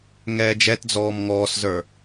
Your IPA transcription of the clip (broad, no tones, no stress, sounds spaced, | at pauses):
ŋ ɛː d͡ʒ ɛ t d͡z ɔː m ŋ ɔː s z ə˞